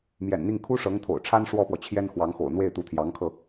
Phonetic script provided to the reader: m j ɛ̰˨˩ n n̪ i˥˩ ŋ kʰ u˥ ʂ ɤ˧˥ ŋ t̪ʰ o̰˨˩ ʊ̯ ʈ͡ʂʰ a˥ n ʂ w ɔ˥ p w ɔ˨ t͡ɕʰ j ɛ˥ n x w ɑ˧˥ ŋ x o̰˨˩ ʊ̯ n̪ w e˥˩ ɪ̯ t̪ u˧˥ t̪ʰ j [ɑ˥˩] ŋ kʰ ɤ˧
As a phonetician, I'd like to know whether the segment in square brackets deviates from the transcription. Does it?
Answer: yes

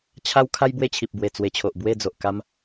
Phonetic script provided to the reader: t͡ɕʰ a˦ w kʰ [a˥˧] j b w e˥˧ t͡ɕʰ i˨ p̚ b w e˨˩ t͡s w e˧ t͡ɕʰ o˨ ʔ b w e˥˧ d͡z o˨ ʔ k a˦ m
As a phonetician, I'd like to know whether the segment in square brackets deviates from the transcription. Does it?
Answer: yes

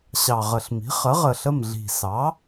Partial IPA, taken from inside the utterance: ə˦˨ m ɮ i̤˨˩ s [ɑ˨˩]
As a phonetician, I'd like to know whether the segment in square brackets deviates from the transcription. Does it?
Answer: yes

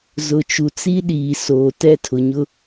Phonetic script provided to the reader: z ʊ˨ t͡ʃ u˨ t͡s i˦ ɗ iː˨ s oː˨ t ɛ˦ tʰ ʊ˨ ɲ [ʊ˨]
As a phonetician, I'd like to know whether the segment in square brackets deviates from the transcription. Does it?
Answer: yes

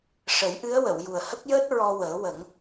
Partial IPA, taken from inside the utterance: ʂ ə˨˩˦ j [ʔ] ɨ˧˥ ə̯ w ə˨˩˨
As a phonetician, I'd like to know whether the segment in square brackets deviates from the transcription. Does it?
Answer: no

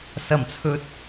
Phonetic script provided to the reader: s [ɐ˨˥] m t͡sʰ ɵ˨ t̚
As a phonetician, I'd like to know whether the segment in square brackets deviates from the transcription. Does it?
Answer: yes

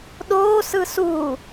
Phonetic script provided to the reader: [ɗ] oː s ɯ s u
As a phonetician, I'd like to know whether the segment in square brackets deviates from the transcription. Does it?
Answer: no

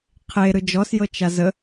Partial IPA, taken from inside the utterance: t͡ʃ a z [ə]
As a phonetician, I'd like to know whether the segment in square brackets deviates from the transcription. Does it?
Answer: no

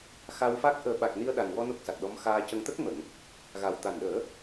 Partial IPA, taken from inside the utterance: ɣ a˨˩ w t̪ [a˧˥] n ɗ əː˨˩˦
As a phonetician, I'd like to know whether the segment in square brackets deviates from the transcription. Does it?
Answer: yes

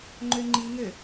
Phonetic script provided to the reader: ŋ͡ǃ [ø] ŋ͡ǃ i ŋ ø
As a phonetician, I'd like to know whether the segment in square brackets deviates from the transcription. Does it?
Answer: no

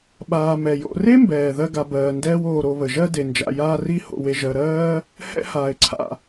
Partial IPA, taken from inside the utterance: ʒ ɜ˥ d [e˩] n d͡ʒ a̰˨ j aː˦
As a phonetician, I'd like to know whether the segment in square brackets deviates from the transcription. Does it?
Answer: no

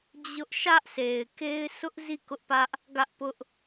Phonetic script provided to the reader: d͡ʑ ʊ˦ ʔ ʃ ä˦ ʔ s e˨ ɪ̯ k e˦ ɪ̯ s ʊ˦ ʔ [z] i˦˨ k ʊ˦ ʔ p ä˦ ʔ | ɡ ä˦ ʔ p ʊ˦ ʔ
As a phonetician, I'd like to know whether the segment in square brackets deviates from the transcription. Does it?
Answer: no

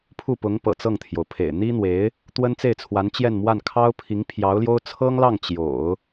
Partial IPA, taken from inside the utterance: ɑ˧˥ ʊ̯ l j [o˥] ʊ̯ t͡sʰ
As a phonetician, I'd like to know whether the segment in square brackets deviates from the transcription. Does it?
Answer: no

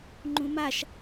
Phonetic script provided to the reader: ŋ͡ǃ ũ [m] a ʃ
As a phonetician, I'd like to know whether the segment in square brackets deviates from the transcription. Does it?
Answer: no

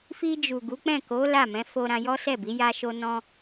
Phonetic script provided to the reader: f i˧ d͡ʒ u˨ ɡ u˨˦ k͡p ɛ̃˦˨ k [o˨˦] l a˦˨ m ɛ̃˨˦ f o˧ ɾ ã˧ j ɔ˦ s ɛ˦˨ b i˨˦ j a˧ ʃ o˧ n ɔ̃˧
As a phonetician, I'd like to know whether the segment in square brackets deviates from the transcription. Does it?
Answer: no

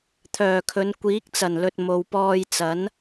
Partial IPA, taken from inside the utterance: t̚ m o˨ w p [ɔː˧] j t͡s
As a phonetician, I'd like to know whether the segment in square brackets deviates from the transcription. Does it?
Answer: no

